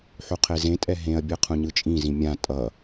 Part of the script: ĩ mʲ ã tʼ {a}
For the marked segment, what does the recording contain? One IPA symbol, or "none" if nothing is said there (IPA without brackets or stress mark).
ʌ